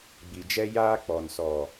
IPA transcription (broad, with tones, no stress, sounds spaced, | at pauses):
ɡ͡b i˨ d͡ʒ ɛ˦ j aː˦ k͡p ɔ˨ n s ɔ˨